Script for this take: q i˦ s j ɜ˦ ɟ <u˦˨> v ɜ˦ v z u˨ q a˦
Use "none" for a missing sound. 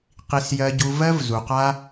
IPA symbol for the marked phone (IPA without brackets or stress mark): u˧